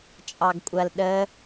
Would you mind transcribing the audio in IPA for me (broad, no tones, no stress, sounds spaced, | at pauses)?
t͡ʃʼ ɑ ɡ kʷʼ ɐ l ɗ ə